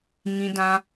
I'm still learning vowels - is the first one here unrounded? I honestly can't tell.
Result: yes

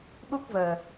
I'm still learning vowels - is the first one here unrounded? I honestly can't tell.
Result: no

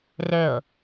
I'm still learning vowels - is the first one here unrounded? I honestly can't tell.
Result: no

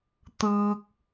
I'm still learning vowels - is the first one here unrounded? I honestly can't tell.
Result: yes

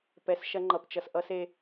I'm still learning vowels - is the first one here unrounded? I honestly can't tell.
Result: yes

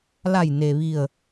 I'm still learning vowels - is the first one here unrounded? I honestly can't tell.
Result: yes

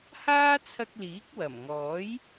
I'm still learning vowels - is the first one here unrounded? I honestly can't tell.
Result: yes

